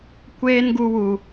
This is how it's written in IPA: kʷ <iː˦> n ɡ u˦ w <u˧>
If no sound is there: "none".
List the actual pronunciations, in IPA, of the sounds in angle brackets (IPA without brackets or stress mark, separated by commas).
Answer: eː˦, u˧